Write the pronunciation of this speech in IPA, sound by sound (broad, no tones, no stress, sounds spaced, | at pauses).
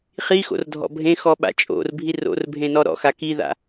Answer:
χ i x o̰ r dʱ ɔ̰ bʱ ẽ x ɔ ɓ a̰ t͡ʃʼ o̰ r bʱ i r o̰ r bʱ ẽ n ɔ ɾ ɔ̰ x a k i ð a̰